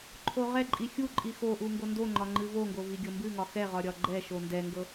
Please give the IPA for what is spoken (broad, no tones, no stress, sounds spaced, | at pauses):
ǃʰ o ʁ ɛ ǃʼ i xʲ u ǃʼ i x o ʔ u ŋ ɡ o n d o ŋ͡ǃ ɒ ŋ͡ǃ ɨ v o ŋ ɡ o v i ɡʲ ɤ m b ɨ ŋ ɒ x ɛ ʁ ɒ ɾʲ ɒ ɡ͡ǃ ɛ ʃ o n d ɛ ŋ ɡ ɤ